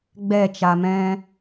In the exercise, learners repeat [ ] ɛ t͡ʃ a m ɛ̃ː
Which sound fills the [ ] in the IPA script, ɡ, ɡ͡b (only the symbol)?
ɡ͡b